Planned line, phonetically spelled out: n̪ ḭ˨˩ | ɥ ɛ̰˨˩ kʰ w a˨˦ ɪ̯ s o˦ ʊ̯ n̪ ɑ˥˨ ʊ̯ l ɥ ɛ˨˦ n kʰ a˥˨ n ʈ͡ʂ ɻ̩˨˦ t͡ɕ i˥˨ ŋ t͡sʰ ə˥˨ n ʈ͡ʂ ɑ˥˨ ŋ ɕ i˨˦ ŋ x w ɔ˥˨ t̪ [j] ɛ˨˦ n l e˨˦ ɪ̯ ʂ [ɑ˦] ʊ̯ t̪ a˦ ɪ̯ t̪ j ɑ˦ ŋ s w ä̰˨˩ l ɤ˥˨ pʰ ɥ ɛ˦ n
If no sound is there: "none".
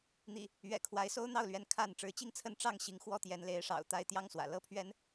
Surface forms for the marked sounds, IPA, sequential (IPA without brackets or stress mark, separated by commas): j, ɑ̰˨˩